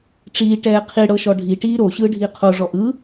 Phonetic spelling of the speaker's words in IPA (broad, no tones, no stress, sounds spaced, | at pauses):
ʈ͡ʂ iː ʈ ɛː qʰ i ɽ ɤ ʃ ɔ ɖʱ i ʈ iː ɾ o ɕ ɯː ɖʱ iː qʰ o ʐ ɔ ʔ ɯ